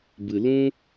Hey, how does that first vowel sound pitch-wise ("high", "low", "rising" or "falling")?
low